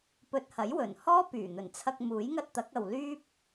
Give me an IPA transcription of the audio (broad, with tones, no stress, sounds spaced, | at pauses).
p ɵ˧ t̚ h ɐ˨˥ j w ɵ˨˩ n h ɔː˥ p yː˨˩ n̪ ɵ˨˩ n t͡sʰ ɐ˧ k̚ m uː˨˥ j ŋ ɐ˥ t̚ t̪ ɐ˨˥ k̚ ɐ˨ w l yː˥ p̚